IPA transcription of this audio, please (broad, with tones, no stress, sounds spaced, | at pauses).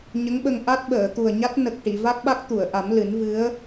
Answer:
ɲ ə˧˥ ŋ ɓ ə˧ ŋ ʔ a˦˥ t̚ ɓ əː˨˩˨ t̪ u˨˩ ə̯ ɲ a˦˥ t̚ n ə˨˩ k̚ ʈ i˨˩˨ v a˦˥ k̚ ɓ a˦˥ k̚ t̪ u˨˩˨ ə̯ ʔ a˨˩˦ m l ɨ˨˩˦ n v ɨ˧˥ ə̯